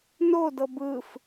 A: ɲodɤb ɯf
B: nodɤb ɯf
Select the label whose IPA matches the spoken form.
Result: B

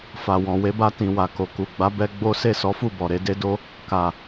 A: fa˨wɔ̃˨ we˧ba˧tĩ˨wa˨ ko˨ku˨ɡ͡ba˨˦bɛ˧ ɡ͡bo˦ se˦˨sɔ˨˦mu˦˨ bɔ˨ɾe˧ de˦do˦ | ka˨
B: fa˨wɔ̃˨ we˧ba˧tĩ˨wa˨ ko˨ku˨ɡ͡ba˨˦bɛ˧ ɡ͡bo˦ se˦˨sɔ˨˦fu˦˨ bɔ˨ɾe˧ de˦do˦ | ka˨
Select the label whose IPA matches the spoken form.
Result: B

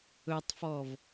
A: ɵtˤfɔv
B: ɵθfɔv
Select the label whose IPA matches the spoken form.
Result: A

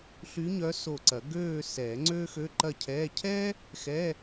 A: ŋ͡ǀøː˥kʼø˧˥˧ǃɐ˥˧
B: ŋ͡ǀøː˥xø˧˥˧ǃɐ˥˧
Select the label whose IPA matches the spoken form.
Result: B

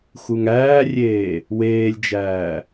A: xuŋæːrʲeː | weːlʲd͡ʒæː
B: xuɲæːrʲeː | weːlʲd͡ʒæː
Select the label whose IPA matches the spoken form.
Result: A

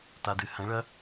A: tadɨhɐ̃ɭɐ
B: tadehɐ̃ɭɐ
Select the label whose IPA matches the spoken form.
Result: A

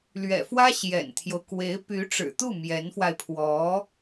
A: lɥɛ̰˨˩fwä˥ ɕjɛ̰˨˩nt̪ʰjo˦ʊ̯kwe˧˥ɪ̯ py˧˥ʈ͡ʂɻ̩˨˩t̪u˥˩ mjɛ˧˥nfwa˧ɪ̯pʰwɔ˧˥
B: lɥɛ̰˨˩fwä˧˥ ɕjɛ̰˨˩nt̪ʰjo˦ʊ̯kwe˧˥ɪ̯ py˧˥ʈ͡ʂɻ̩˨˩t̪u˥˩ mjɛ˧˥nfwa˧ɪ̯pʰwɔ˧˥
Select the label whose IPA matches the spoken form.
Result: A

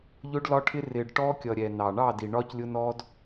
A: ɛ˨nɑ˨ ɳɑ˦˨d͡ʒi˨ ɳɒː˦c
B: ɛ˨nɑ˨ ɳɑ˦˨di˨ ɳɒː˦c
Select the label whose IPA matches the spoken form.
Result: B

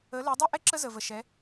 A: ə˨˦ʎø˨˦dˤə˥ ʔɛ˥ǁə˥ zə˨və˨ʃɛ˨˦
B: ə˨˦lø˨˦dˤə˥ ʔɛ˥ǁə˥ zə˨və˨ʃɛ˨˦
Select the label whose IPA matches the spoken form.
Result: B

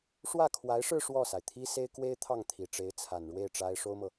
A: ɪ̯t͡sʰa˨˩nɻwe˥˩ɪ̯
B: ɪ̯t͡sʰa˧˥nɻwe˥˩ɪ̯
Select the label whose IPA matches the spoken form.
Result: A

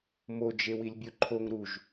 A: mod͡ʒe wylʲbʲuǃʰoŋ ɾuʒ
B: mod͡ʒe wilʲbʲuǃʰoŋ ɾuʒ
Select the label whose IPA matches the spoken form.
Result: B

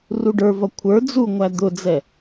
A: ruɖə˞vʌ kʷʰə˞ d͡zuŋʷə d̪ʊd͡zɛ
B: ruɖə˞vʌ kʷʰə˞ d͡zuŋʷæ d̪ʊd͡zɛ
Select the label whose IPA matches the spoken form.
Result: B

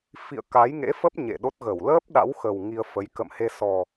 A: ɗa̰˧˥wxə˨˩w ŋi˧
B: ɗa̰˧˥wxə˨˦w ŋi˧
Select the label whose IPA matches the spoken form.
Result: A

